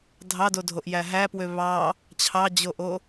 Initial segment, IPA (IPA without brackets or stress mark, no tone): dʱ